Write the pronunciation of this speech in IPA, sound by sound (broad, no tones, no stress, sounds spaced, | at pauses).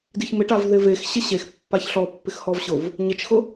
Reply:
d i ç m ɪ ʈ a v ð ɪ v e x ɕ ɪ ɕ e x pː a ç ɬ ɔ pː ɪ x h ɔ v ɕ ʊ v | ɲ ɪ t͡ʃ x ʊ